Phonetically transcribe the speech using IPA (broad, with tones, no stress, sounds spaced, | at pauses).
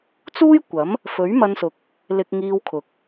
t͡s uː˥ j kʷ ɐ˨˥ m | f ɵ˨˥ ɥ m ɐ˧ n s ʊ˨ k̚ | l ɪ˧ k̚ ŋ iː˧ w kʰ ʊ˨ k̚